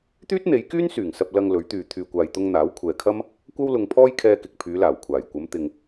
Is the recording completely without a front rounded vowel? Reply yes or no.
no